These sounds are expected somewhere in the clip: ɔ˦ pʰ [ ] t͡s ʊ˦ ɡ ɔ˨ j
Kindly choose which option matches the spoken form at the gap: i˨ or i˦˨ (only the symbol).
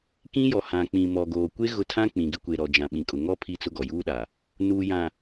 i˦˨